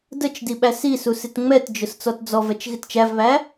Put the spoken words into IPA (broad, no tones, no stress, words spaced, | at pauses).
dət͡ʃdi ɓæsisu sɪtŋ͡mɛtd͡ʒʊs t͡sɔtd͡zɔvɛt͡ʃ ɣɪtt͡ʃævβæ